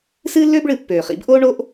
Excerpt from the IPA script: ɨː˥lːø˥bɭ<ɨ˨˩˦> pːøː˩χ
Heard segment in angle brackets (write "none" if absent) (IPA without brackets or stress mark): ɨ˨˩˦